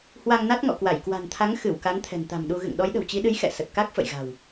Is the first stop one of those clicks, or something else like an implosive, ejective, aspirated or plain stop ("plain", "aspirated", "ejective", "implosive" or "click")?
plain